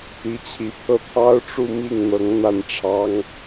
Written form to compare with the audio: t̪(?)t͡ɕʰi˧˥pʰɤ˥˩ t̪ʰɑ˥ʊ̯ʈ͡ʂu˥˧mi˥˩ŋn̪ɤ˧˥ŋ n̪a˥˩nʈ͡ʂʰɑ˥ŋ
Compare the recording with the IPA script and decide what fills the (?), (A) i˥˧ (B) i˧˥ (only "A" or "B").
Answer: B